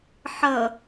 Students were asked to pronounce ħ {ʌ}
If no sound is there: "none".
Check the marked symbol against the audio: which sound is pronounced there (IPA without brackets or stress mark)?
ʌ